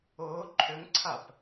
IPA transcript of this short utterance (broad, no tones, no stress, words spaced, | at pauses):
ʊː ǃʰʏŋǀʰap